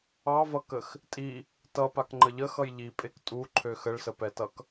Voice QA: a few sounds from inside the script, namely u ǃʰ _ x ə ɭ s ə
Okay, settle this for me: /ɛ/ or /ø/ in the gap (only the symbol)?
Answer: ø